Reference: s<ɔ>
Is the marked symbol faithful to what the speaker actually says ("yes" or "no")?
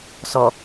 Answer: yes